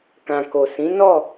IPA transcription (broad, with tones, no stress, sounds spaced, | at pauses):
k ã˨ k o˨ s ĩ˨˦ n ɔ˦˨